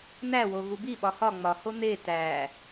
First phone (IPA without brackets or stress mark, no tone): n̪